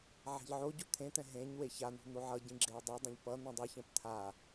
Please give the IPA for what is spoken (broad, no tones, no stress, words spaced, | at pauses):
ʕɛ̤ʎʕoɟu t̪ʰẽt̪ɛ̃ ɦẽɲ weçan̪ṳ n̪oʕʌɟĩ ɡ͡ǁeə̯dˤɯdˤũʎ pʌ n̪ũdˤɯçɛ̃p t̪ʰa